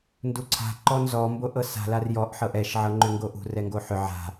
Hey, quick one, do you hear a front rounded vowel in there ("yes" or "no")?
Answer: yes